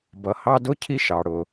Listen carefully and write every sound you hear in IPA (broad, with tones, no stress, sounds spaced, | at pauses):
b ʌ˩ h ɑ˦ d ʊ˥ cʰ i˥ ʃ ɑ˩ ɽ ʊ˩